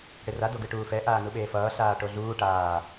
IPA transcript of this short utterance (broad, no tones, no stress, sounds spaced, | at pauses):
ɽ e r a d o ɡ ɯ ʈ uː f ɛ ʔ aː n u ɓ eː f ʌː ɬ aː ʈ o ɮ uː ʈ aː